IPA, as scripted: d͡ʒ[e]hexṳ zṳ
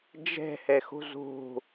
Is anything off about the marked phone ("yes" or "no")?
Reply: yes